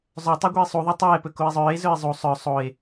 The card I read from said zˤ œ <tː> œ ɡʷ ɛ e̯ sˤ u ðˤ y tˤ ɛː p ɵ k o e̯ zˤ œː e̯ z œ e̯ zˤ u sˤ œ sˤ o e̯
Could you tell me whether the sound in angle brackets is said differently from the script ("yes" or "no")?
yes